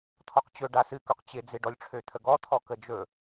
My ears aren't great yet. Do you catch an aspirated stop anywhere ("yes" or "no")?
yes